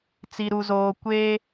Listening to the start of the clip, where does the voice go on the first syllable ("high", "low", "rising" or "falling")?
low